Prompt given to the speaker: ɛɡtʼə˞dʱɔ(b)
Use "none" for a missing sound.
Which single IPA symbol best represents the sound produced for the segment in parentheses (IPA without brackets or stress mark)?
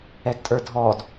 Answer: d